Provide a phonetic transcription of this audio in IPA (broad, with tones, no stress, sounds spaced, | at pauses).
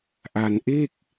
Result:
ʔ a˧ n ʔ e˥˩ k̚